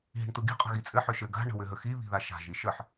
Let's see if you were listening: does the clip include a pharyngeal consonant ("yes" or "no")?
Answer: yes